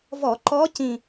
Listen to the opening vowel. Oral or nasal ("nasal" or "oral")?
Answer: oral